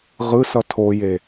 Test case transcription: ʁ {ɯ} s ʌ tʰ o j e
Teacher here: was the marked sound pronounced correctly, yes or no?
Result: yes